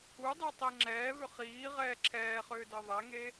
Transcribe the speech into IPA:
u dˤ e tˤ e ŋ͡ǁ ɛː v ʏ χ iː ʁ ɛː ǁʰ ɛː χ ʏː d ɤ ðˤ ɛ ŋ e

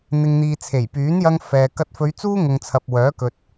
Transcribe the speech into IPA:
n̪ ɪ˨ ŋ n̪ iː˨ t͡sʰ e˨˩ j p yː˨˥ n j ɐ˧ ŋ f ɛː˨ k ɐ˧ t̚ f ɵ˨˧ ɥ t͡s uː˥ ŋ ʊ˨ ŋ t͡sʰ ɐ˨ p̚ w œː˨˥ k ɵ˨ t̚

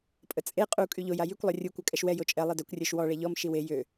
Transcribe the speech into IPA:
pʼ ə t͡sʼ e qʼ u kʼ y ʎ o j a j y kʷ lˠ ɛ rʲ u kʷ œ kʼ ɛ ʃ w ɛ j o t͡ʃʼ ɛ lˠ i d œ kʷ rʲ œ ʃ w ɔ ɭ ɛ ʎ ɔ m ʃ i w e j ø

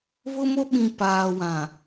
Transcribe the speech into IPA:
β ʊ˦ m o˦ ɓ ĩ˨ p aː˨ w ã˨

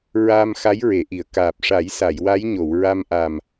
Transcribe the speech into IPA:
ɹ aː˧ m x a˧˥ j ɹ e˨˩˨ ʔ i˨˩˨ ə̯ k aː˨˩ p̚ ʂ a˨˩˦ j s a˨˩˨ j w a˧˥ j ɲ o˨˩˨ w ɹ a˧ m ʔ a˨˩ m

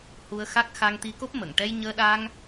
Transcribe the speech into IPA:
h u˧ ə̯ x a˦˥ k̚ x a˧ ŋ t̪ i˧ k o˦˥ p̚ m ə˨˩˨ ŋ ʈ ɛ˧ j ɲ əː˧ ɗ a˧ ŋ

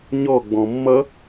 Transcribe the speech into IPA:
ɲ ɔ ɡ͡b ɔ̃ mː ʌ

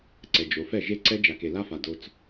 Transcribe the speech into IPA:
ǀ ɛ˨ d͡ʒ o˨ f ɛ˦˨ ʒ e˦ ǀ ɛ˦ d͡ʒ a˨ k e˨ l a˦ f a˨ d o˧ t͡s

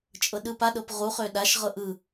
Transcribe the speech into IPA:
t͡ʃʼ ɤ ɗ ɯ p a ɗ ɤ p ʁ u χ ø ɗ a ʃ ʁ ɤ ʔ ɯ

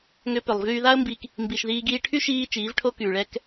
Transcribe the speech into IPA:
ŋ ʏ˧ p ʏ˨ lˠ v yː˧ ð a˦ ə̯ m b i˧ k | m b i˨ ʃ ð iː˧ ɡ iː˧ ʈʰ y˦ ʃ iː˧ t͡ʃ iː˨˦ v ʈʰ o˦ k yː˨ ɭ ɛ˧ k

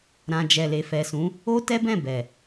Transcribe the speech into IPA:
ɾ ã˨ d͡ʒ ɛ˨ l e˨ f ɛ˨ s ũ˨˦ | o˦ t ɛ˦ b ɛ̃˦˨ b ɛ˨

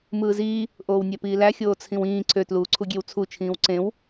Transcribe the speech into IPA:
m ɯː z iː | ʔ oː w nʲ æ p iː l æ xʲ oː t͡sʰ ĩ w ĩː ǀʰ ø t l uː ǀʰ u ɡʲ e w t͡sʰ u t͡ʃʰ ĩː w ǀ ẽ w

